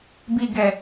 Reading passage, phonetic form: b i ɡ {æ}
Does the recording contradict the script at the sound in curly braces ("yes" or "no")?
yes